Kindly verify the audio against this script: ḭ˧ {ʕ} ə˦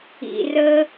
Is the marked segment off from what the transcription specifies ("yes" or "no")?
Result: yes